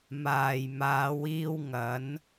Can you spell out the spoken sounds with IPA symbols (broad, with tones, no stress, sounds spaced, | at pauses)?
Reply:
m aː˨ j m aː˨˧ w iː˧ w ŋ ɐ˨˥ n